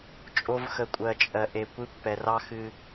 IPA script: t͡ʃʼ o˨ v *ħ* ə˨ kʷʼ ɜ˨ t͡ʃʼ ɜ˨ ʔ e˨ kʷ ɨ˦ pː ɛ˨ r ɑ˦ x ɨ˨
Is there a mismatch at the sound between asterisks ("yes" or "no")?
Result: yes